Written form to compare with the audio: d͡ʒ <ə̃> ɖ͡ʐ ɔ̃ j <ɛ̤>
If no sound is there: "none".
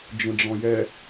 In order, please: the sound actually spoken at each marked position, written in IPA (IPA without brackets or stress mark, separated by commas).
ə̃, ɛ